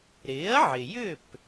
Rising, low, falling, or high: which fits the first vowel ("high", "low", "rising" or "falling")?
rising